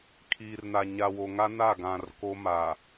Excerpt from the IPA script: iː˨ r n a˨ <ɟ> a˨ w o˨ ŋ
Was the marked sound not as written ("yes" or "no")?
yes